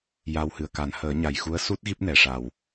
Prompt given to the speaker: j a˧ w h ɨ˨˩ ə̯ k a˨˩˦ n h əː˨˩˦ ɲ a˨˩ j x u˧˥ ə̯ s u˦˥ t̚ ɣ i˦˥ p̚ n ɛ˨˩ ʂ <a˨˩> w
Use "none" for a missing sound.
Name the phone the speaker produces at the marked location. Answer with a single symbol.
a˨˩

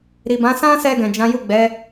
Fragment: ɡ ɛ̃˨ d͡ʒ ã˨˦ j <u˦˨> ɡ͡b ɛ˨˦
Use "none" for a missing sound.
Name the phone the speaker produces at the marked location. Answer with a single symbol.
u˦˨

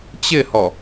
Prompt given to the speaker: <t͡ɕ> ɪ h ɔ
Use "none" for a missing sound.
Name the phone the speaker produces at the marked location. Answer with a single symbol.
t͡ɕ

